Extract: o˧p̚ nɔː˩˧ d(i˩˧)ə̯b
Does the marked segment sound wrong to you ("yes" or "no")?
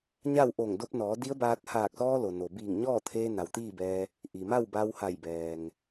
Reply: yes